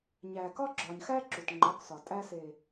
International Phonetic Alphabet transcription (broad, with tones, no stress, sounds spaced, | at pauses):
ɲ æ˨ k ɒ˦ ɡ͡ǁ ɒ˨ ɲ x æ˦ ǁ u˨ t ŋ͡ǃ ɒ˨˦ k s ɒ˨ tʼ æ˧ s e˨